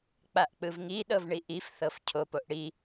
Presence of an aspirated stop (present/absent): present